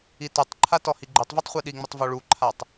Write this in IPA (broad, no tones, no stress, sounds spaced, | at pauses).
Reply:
i t u tˤ ǃʰ a t ɔ h i ɡ͡ǃ ʉ tˤ v ɤ tˤ χʷ i ɗ i ŋ͡m i tˤ v ɔ ɭ u ǃʰ a tˤ